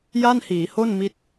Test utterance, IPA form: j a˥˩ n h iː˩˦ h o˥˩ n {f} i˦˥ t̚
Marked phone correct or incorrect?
incorrect